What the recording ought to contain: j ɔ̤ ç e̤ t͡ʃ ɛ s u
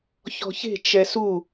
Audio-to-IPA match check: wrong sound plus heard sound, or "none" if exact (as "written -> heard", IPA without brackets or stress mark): j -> ç